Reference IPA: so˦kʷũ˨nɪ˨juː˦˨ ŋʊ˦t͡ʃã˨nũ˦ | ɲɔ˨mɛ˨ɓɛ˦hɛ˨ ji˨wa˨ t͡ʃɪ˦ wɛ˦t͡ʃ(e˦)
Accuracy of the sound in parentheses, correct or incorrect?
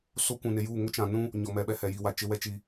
incorrect